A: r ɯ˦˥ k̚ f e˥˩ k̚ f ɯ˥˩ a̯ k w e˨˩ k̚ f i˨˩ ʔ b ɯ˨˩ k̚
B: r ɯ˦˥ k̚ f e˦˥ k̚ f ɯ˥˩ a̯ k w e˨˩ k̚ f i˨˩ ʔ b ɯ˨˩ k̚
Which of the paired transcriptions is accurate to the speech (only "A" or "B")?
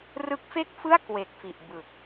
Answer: A